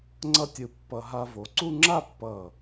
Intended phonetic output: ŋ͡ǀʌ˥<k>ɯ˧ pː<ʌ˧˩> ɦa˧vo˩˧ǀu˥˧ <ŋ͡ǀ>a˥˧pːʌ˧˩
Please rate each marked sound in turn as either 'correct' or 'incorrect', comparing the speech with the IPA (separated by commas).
incorrect, incorrect, incorrect